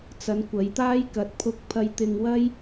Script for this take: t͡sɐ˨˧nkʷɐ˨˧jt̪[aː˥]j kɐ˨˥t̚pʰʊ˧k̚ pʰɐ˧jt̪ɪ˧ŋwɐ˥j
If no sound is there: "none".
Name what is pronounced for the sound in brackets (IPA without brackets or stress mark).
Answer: aː˥